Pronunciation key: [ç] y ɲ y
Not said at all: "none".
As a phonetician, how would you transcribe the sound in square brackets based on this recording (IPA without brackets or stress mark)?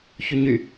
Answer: ç